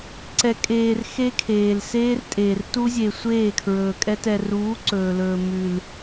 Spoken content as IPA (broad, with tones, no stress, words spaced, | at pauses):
ǀɛ˨kʼeː˨r xe˦kʰeː˨lseː˦rtʼeː˨r tu˦zʲe˨ sʷeː˦˨kʰɹɵː˨kʼɛ˦ tɛ˨ruː˨˦ ǀɵː˨lɵː˨mʉ˨l